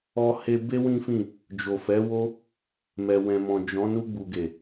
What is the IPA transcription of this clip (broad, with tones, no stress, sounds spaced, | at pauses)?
ɔ˧ h e˧ b e˦ w ĩ˦ f ĩ˦˨ | d͡ʒ o˨ f ɛ˨˦ w o˦ | m ɛ˨ w ɛ̃˨ m ɔ̃˨ d͡ʒ ɔ̃˨˦ n u˧ ɡ͡b u˨ ɡ e˨